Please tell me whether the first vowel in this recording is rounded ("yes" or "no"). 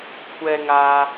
no